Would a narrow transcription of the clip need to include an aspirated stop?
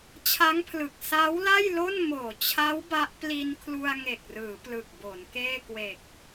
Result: yes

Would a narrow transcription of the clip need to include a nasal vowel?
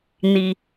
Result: no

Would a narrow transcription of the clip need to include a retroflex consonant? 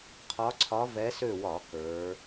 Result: no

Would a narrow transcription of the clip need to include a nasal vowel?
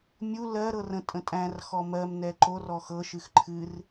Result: yes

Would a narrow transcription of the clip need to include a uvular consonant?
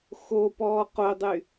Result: yes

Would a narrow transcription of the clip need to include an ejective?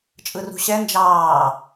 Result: yes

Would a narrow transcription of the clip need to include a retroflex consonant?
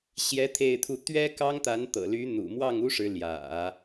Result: yes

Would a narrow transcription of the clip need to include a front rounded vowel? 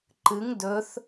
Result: no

